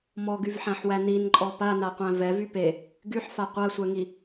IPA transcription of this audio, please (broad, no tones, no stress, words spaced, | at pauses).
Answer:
mɔɡyvħæ̃ħwæ ninǃʼɔ panaqʷæ̃ vɛvy pe | ɡyħfa qʷasʷɛŋi